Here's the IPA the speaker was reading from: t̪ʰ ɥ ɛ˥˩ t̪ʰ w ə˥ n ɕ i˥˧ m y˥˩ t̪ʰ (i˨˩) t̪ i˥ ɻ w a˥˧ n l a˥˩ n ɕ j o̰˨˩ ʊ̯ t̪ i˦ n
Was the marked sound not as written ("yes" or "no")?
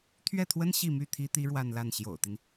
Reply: yes